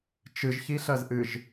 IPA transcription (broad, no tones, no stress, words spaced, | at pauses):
t͡ʃɨʒçiɬɜzʔɨʒ